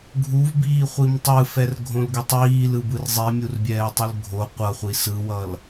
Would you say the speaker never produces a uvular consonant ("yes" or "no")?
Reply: no